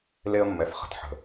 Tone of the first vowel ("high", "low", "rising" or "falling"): high